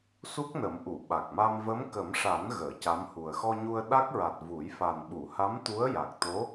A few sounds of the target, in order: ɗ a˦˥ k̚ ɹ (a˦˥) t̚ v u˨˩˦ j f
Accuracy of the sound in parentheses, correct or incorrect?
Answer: incorrect